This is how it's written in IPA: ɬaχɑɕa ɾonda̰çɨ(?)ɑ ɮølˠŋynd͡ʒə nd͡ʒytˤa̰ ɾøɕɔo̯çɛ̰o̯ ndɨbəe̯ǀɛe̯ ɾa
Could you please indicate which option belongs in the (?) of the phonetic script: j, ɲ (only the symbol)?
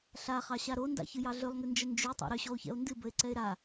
j